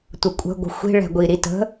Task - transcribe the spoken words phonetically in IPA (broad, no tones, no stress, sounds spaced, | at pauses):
tʷ ə kʷʼ ə̤ ɡʷ ə̤ xʷ i̤ ɭ ɛ̤ ɡʷ i ɾ i t ə̤